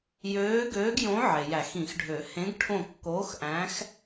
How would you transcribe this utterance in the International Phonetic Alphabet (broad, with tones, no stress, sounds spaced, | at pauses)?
j øː˧˥ ɡ øː˧˥ ɡ j õ˧˥ ʕ e˩ j æ˨˩˦ x ĩ˨˩˦ x ɖʱ ø˨˩˦ h ẽ˧˥ ɡ ʈʰ õ˦˨ kː oː˧˥ x ʔ æ̃˧˥ x